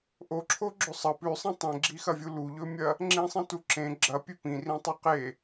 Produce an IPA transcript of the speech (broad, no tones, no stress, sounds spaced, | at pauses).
ʔ o ǁʰ o ɡ͡ǁ ɵ sˤ ɐ p ʉ sˤ ĩ tˤ ẽ ɡ͡ǁ i x ɐ vʲ u l u ʎ ɵ mʲ ɐ | ŋ͡ǁ ĩ sˤ ĩ t u ǁ ẽ ɡ͡ǁ ɐ pʲ ʉ p ĩ r ĩ tˤ o q e